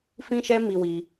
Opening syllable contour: high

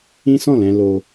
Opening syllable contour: high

